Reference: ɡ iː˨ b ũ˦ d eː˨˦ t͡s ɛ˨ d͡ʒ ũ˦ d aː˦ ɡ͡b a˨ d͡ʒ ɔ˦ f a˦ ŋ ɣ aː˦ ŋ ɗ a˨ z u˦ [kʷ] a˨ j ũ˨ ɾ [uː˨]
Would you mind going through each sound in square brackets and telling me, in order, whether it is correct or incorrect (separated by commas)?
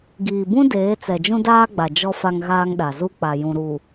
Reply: incorrect, incorrect